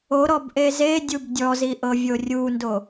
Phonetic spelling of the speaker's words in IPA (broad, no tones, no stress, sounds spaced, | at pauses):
o ɾ ɔ b ʔ e z e dʲ u b dʲ ɔ z i ʔ ɤ vʲ o rʲ u n d o